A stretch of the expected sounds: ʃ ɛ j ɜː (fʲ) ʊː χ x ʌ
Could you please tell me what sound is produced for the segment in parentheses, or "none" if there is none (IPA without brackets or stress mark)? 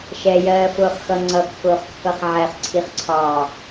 f